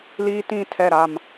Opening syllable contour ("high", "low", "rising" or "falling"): high